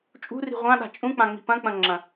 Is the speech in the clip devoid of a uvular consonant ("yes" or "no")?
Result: no